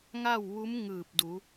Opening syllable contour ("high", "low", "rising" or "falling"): falling